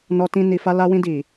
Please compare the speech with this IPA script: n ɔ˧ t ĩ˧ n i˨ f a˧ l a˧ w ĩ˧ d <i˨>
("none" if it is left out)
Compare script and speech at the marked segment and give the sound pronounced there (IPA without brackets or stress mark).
i˨